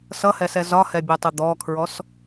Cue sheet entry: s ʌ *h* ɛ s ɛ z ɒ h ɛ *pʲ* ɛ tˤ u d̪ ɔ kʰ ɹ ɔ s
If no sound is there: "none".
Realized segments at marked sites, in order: h, bʲ

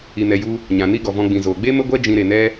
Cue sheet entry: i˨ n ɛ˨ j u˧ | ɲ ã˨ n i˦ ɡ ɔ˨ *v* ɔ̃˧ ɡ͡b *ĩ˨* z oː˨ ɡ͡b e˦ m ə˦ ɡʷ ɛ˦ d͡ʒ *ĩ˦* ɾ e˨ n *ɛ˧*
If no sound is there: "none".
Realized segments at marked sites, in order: v, ĩ˨, ĩ˧, ɛ˦

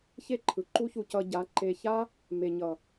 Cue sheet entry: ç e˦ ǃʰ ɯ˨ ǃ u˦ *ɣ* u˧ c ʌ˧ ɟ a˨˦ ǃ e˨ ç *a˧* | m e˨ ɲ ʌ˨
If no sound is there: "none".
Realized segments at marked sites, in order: ç, a˦

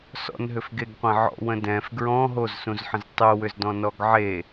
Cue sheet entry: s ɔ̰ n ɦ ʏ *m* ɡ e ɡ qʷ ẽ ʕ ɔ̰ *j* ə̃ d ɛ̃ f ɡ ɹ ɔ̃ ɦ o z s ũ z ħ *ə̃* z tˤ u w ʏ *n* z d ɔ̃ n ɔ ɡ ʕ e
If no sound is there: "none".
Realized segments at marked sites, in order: f, w, ə̃, none

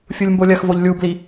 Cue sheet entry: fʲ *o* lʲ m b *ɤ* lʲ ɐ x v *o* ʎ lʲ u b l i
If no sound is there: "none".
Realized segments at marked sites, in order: u, o, o

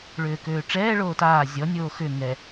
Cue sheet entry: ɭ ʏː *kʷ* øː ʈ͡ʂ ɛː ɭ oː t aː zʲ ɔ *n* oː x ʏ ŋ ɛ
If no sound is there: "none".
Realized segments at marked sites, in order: k, nʲ

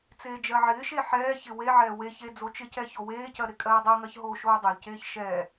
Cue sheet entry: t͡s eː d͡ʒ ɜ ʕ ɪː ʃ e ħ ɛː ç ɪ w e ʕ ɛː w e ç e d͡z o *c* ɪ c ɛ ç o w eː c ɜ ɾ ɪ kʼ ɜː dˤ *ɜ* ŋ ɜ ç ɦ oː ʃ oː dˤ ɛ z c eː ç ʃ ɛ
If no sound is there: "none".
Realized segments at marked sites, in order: t͡ʃ, ɜ

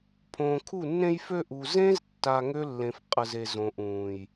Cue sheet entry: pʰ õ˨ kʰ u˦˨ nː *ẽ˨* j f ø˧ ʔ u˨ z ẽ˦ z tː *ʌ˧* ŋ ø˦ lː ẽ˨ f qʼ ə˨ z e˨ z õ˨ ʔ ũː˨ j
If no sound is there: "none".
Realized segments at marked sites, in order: ẽ˧, a˧

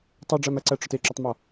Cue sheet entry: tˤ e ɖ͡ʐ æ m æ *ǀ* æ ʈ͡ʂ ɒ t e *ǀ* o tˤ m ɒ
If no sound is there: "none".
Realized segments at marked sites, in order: ǀ, ǁ

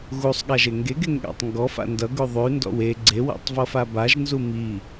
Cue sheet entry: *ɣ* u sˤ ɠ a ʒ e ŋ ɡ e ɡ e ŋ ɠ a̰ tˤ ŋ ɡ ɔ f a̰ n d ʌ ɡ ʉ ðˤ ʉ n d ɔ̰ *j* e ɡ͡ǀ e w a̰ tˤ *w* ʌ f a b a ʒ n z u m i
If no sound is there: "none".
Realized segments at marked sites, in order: ɣ, w, v

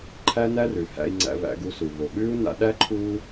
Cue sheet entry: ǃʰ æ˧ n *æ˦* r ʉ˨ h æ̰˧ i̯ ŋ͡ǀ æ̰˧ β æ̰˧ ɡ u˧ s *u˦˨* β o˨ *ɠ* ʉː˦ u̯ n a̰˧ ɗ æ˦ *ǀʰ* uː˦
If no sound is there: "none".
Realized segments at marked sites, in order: æ˦, u˨, ɠ, ǃʰ

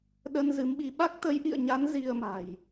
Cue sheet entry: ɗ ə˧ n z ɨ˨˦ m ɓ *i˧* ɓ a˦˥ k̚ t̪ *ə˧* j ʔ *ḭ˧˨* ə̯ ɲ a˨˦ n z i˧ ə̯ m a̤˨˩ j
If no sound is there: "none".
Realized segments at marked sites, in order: i˧, ə˨˦, ḭ˧˨

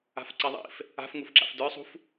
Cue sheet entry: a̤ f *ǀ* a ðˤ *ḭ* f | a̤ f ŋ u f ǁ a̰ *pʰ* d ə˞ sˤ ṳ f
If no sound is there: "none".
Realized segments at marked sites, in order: ǀ, ḭ, f

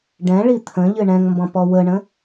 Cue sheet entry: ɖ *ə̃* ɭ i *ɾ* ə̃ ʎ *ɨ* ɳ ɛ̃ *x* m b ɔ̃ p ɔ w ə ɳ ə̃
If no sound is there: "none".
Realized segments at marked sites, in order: ɛ̃, t̪ʰ, ɨ, ŋ

